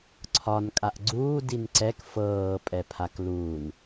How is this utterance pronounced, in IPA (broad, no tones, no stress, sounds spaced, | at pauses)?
ǀʰ ɒ n kʼ a ʔ ɡ͡ǀ uː d i n ǀ ɛ k f ɤː pʼ ɛ pʰ a k l uː n